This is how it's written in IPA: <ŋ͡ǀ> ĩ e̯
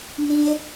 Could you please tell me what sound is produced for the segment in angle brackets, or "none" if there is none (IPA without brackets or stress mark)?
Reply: n